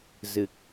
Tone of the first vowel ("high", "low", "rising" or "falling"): low